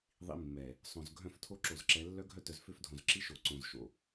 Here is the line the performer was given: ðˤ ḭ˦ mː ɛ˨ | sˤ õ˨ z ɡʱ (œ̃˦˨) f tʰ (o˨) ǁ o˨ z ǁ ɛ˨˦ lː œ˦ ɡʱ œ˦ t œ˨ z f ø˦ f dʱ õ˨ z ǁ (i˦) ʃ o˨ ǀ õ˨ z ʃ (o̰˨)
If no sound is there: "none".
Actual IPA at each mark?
œ̃˦˨, o˦, i˦, o̰˨

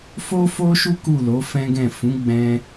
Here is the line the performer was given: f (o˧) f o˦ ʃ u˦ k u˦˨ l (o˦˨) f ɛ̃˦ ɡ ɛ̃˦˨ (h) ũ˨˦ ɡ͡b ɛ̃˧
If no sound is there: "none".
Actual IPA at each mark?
o˦, o˨˦, f

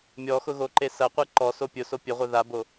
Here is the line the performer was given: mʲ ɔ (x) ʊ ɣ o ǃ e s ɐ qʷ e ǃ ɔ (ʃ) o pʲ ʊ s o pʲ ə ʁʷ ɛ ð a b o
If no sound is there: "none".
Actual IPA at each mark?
x, s

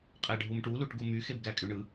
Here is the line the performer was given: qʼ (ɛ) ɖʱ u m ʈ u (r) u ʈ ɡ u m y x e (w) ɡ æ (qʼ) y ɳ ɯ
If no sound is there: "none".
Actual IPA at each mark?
æ, l, b, kʼ

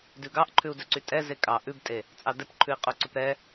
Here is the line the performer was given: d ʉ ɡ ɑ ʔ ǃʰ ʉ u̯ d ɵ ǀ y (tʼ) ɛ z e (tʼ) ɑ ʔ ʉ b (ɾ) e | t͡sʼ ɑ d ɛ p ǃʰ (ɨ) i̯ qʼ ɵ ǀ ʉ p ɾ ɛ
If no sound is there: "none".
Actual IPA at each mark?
tʼ, kʼ, tʼ, ʉ

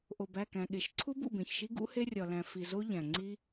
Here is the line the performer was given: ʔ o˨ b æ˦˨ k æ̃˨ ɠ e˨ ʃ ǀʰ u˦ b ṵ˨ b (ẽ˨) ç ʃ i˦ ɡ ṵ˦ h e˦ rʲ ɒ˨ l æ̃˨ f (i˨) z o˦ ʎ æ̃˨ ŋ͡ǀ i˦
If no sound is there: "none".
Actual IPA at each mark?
ẽ˨, i˨

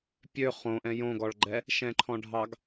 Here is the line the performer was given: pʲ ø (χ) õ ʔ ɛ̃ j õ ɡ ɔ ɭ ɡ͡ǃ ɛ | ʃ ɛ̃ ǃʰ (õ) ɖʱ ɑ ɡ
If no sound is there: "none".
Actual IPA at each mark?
χ, ɔ̃

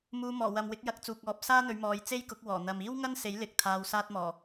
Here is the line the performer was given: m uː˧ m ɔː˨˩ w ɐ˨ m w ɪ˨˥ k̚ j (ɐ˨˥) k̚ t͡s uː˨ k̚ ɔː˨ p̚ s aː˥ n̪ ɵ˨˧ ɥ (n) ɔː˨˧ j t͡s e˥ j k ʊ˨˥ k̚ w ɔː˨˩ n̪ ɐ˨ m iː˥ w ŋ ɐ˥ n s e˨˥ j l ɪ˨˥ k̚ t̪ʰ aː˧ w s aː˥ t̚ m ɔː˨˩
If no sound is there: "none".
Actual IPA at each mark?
ɐ˨˥, m

